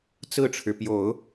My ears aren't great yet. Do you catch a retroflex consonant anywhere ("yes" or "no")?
yes